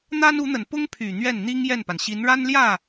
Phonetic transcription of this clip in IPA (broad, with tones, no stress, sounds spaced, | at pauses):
n̪ a˥ n u˧˥ n̪ ə˨˩ n p ʊ˥ ŋ pʰ y˨˩ n̪ ɥ ɛ˥˩ n n̪ i˥ ŋ j ɛ˥˩ n p a˩ n ɕ i˧˥ n ɻ a˥ n l j ä˥˩